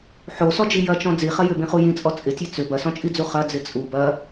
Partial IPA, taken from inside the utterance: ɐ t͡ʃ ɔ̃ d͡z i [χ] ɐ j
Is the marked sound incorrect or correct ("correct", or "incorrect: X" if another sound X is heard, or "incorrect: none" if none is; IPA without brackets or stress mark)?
correct